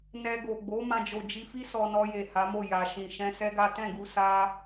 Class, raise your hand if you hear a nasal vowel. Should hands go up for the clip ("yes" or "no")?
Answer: yes